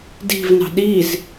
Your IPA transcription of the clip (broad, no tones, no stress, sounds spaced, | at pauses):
d i̤ v n ɑ̤ ɗ i z